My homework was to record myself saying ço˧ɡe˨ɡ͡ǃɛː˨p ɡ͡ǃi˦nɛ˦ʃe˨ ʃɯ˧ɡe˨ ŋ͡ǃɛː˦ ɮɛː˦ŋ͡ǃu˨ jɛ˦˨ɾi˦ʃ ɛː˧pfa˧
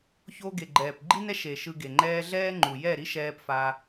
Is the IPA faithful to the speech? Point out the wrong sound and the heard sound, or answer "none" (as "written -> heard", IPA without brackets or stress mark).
none